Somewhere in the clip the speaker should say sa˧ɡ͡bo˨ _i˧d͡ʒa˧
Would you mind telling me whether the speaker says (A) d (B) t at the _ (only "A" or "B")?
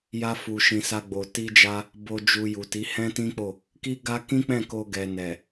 B